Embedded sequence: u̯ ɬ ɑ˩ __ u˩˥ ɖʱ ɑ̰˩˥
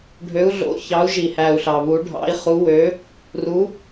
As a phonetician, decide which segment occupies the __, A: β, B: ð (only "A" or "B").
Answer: A